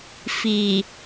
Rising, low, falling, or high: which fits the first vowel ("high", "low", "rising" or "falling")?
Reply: low